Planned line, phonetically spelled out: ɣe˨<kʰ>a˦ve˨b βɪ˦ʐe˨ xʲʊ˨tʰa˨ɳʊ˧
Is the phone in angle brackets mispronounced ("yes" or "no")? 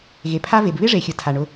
yes